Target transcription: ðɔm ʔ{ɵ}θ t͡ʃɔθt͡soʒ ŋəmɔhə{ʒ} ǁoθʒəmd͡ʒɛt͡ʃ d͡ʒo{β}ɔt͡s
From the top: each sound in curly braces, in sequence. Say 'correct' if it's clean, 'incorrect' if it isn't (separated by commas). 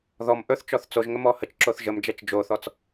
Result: correct, incorrect, incorrect